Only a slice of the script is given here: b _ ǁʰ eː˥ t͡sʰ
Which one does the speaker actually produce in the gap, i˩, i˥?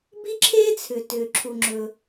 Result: i˥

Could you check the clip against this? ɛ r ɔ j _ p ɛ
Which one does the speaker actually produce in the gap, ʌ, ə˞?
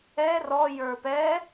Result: ə˞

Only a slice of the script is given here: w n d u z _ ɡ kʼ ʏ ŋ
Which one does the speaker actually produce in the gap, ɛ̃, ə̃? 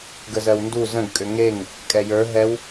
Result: ə̃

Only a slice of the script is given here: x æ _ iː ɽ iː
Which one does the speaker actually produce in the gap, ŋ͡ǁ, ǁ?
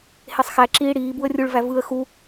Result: ǁ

